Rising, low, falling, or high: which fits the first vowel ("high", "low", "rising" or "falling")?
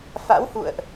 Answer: rising